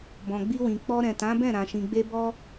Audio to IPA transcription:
b ɔ̃˨ ɡ͡b i˧ w ĩ˨ k͡p ɔ˧ ɾ ɛ̃˨ t ã˨˦ b ɛ̃˦˨ ɾ ã˨ ʃ ĩ˨ ɡ͡b e˧ b ɔ˦

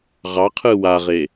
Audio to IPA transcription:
ʁ ɑ qʰ ɯ w a ʁ e

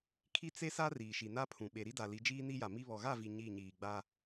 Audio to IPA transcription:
kʰ i˦ t͡s e˦ s a˦ r iː˨ ʃ i˨ n a˦ pʰ ũ˨ ɓ e˨ ɾ i˦ d a˨ l i˨˦ d͡ʒ iː˦ n i˦ j a˨ m i˦ β ɔ˨ ɣ a˦˨ v i˨ ɲ i˦˨ ɲ iː˨ ɡ͡b a˦

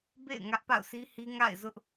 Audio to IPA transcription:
b ḛ˦˨ ɪ̯ ŋ ä˦ ʔ p a̰˦˨ ʊ̯ s i˦ h i˦ ŋ a̰˦˨ ɪ̯ z ʊ˦ ʔ

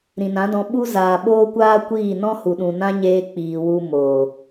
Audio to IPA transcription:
ɾ ĩ˨ n ã˨˦ d ɔ̃˧ ɓ u˦ z aː˨ ɓ oː˦ kʷ aː˦ kʷ iː˦˨ n ɔ̃˦ h u˨ ɗ ũ˨ n ã˦ ɲ eː˧ k͡p iː˨ w u˧ m oː˨

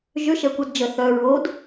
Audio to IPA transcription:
ʒ ʏ ʃ ɛ kʷ ə d d͡ʒ ə θ œ ɹ o d

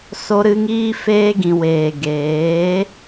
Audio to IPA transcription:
s o˧ ɾ ɨ˧ ŋ iː˧ f eː˧ ɡ ĩ˨ w eː˨ ɡ eː˨˦

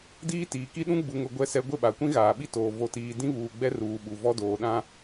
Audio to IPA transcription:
d iː˦ t iː˨ k i˦ ɗ ũ˦ ɡ͡b u˨ ŋ ʊ˨ ɡʷ ɛ˦ s ɛ˦ ɡʷ ɪ˦˨ ɓ a˨ kʷ ĩ˦ ɣ aː˨ ɓ i˦ t oː˨ v o˨ t iː˨ d ĩ˦ β uː˨ ɡ͡b ɛ˦ r uː˨ ɓ u˨ v ɔ˦ d oː˨ ɗ ã˦

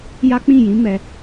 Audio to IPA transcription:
j a˦ k͡p ĩ˦˨ j ĩ˨˦ m ɛ˧

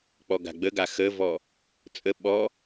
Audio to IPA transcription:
k͡p ɔ ɡ a̤ ɡ͡b ə ɡ a x ə v ɔ | t͡sʼ ə ɓ ɔ

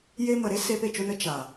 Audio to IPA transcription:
j e˧ m ə˨ ɾ e˦ s eː˧ p e˨ t͡ʃ o˧ n ə˦ t͡ʃ a˨

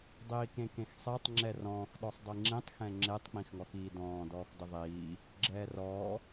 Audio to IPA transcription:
dˤ iː k ẽ k ẽ x sˤ ɛ tˤ ŋ͡ǁ ɛ r ɔ̃ː x ɗ ɔ sˤ dˤ i ŋ͡ǁ ĩ tˤ x ɛ̃ ŋ͡ǁ e tˤ k͡p ĩ x ŋ ɔ x iː d ɔ̃ː d ɔː x d ɘ ðˤ iː | ɡ͡ǁ ɛː r ɔː

